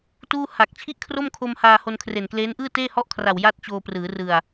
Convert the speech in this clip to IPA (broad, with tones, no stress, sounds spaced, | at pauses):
t uː˥˩ h a˨˩ k̚ t͡ɕʰ i˥˩ ʔ kʰ r o˥˩ m kʰ o˧ m h aː˧ h o˧ n kʰ r e˨˩ n k l eː˦˥ n ʔ ɯː˥˩ t eː˥˩ h ɔ˥˩ ʔ kʰ r a˨˩ w j a˥˩ t̚ t͡ɕ oː˧ p r ɯː˩˦ r ɯ˨˩ a̯